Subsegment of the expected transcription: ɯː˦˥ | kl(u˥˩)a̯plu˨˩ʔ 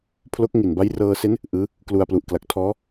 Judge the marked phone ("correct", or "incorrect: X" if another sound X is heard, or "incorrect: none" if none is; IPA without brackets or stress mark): incorrect: u˧